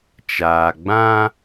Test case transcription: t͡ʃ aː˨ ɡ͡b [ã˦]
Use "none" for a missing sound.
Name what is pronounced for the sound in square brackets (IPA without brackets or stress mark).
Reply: ã˦